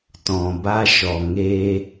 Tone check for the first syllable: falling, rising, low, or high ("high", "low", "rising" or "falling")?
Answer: low